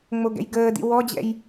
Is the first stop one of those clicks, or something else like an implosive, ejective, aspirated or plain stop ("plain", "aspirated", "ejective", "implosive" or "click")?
plain